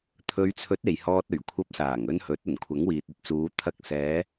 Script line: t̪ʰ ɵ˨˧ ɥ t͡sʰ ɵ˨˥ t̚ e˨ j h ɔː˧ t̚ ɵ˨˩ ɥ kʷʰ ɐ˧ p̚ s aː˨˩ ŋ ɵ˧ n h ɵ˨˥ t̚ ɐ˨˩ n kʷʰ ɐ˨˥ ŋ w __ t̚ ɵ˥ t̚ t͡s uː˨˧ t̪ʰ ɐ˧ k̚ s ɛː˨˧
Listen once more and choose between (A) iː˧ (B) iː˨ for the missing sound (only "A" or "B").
B